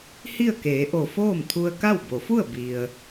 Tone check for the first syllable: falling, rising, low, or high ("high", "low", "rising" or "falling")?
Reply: falling